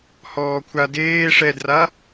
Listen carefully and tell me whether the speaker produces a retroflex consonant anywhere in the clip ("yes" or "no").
yes